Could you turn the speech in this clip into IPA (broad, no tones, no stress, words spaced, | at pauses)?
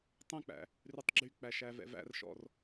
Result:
tˤɛ̃k͡pæ̰ | rʉtˤɡ͡ǁyk͡pæ ʃævɛ̰væ̰rʃɔ̰r